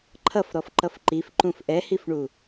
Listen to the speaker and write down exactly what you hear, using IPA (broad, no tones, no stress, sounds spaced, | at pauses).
ǃʰ ʌ f ɾ ɔ f ǃ ʌ f ǃ i f ǃ ũ f ʔ ɛ h i f ɳ u